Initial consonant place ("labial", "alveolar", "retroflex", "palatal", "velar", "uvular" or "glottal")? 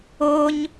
palatal